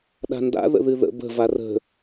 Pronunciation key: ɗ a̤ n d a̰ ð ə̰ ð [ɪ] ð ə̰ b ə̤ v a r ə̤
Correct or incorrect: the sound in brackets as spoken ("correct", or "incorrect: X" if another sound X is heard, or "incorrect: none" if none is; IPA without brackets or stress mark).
incorrect: ɨ